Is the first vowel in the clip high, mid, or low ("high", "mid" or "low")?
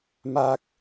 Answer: low